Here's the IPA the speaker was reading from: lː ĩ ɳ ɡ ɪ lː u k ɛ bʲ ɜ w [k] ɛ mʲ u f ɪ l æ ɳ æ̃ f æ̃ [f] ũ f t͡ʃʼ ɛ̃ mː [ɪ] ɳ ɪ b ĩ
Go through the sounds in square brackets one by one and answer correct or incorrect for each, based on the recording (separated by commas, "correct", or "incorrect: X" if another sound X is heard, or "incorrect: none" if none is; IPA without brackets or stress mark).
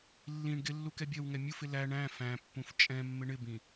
incorrect: ŋ, incorrect: pː, correct